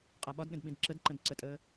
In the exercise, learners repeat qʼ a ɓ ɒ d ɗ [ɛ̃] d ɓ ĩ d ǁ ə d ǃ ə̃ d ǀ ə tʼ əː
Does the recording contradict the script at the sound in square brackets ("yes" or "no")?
yes